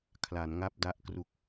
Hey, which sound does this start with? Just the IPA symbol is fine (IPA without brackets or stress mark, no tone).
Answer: kʰ